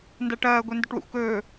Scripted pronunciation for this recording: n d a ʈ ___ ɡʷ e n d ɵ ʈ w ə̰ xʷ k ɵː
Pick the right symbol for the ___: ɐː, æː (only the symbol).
ɐː